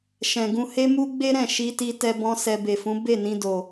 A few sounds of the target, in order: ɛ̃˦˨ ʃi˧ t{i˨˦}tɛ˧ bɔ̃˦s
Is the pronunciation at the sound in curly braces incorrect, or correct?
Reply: incorrect